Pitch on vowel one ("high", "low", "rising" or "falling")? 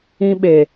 high